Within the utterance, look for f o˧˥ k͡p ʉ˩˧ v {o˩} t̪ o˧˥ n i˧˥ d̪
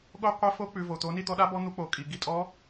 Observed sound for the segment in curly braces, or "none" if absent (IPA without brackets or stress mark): o˩